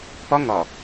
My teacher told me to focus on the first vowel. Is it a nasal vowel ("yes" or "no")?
no